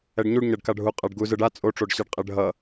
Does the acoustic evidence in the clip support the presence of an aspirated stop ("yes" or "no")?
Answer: no